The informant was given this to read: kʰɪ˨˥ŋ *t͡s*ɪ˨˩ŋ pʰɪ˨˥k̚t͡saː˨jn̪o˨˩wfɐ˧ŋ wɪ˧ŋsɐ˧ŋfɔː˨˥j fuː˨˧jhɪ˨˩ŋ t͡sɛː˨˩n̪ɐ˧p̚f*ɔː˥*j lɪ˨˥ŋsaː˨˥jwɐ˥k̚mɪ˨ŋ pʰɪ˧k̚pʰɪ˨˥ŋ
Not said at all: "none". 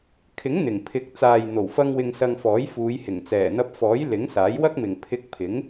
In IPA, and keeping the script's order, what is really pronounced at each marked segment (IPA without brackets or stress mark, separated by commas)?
n̪, ɔː˨˥